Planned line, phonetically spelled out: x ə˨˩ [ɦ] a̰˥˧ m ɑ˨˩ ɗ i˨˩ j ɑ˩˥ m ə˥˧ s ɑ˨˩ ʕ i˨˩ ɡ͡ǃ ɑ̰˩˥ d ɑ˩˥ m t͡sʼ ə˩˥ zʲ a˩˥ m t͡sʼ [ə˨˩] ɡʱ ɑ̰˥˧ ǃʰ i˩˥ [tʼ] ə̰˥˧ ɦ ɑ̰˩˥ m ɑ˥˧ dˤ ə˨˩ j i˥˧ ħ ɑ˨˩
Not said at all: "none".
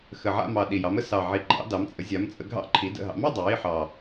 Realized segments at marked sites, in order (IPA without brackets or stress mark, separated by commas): ʕ, ə˩˥, d